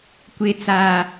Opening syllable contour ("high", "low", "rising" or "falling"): high